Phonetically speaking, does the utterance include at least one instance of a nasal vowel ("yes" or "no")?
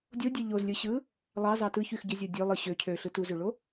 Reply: no